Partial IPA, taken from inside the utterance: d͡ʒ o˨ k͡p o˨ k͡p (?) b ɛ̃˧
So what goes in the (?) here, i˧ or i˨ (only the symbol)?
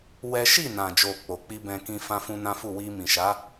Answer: i˧